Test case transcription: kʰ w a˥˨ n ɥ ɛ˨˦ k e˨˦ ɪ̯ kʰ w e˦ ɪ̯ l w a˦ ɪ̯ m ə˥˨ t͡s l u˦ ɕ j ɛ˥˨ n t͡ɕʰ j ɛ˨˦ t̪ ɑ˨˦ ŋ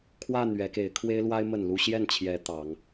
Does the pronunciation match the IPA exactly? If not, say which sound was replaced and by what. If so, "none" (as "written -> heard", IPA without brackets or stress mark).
t͡s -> n